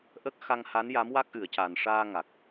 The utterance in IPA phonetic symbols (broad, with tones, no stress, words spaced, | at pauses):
ʔə˦˥k̚ xa˧ŋha˧˥nja˧˥m wa˦˥k̚ʔɨ˨˩˨ə̯ca˨˩n ʂaː˧ŋa˨˩k̚